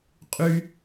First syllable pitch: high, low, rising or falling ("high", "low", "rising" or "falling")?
high